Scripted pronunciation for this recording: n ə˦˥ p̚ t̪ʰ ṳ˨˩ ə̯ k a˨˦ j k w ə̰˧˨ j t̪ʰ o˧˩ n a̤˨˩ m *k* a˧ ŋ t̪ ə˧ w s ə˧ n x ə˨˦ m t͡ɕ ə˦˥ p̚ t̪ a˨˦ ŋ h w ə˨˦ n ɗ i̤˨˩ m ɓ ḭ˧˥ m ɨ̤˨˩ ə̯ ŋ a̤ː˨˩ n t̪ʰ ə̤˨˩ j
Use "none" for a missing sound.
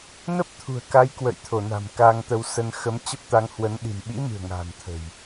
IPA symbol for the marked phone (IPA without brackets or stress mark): k